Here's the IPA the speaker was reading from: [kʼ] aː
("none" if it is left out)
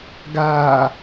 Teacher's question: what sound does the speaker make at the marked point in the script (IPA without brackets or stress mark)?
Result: ɡ